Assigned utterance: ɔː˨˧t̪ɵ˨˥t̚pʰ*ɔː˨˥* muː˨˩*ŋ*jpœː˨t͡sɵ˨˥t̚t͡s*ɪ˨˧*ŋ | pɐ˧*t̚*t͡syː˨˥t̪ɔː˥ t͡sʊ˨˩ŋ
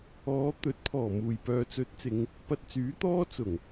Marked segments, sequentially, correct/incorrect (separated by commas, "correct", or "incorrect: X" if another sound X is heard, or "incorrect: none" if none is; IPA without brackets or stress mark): incorrect: ɔː˨˩, incorrect: none, correct, correct